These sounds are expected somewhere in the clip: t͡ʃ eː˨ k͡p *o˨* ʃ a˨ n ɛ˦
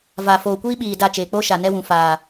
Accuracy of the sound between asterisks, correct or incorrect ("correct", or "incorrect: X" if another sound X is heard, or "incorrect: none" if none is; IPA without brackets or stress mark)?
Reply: incorrect: o˦